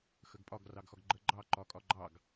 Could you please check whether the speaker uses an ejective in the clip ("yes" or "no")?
yes